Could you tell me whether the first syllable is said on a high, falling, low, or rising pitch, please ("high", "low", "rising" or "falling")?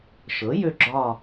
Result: rising